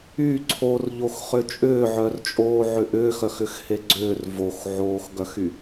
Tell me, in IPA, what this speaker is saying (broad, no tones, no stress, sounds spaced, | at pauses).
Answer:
y ǀʰ o r ʎ o x χ ʏ t͡ʃʼ ʏː ʕ œ r t͡ʃʼ oː ʕ ʏ ʔ ʏː x œ x ʏ x h e ɡ͡ǀ ʏː r v o x ʕ oː x ɡ œ x y